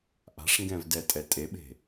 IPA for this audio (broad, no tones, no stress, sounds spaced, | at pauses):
ʔ a̤ ʂ ŋ ɡ ɛ̃ v d ɛ tʼ ɛ tʼ e ɓ e̤